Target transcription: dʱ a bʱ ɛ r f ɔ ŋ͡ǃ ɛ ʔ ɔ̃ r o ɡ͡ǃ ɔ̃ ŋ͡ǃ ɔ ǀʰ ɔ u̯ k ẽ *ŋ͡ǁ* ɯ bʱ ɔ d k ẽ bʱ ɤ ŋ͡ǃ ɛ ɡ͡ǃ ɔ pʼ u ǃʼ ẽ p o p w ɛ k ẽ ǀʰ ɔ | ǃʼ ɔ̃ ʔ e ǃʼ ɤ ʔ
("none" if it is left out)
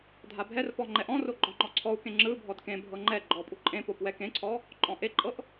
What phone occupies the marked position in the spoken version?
ŋ͡ǁ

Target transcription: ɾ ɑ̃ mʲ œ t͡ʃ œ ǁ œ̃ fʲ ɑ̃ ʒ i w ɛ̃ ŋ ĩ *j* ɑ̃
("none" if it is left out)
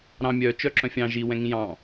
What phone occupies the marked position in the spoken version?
j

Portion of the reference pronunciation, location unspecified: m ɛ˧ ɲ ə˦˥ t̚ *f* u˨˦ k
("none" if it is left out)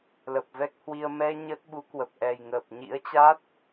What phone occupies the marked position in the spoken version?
ɓ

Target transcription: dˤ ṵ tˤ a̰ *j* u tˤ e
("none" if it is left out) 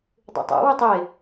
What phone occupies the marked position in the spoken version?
w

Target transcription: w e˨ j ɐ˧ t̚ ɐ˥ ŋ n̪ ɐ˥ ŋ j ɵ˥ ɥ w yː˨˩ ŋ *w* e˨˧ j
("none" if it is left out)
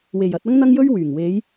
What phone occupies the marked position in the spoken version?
w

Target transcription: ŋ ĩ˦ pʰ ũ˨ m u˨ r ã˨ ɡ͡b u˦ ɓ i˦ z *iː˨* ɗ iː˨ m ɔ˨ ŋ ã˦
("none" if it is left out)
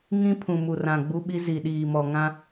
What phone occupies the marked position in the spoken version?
i˨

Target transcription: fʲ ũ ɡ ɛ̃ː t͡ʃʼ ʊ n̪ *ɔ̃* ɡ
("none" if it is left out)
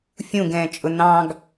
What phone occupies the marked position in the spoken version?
ɑ̃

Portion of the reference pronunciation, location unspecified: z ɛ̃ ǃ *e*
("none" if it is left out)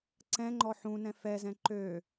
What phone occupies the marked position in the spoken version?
ø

